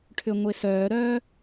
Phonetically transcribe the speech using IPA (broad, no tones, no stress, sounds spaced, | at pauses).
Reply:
ʈʰ ʏ ŋʷ e s œː ɾ œː